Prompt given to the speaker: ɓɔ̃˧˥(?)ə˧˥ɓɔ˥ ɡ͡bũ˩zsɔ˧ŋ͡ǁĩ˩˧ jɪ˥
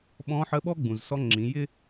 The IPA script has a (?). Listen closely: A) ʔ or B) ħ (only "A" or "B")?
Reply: B